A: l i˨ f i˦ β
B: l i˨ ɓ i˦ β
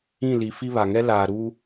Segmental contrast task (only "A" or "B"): A